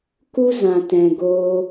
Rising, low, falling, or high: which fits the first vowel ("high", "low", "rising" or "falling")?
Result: high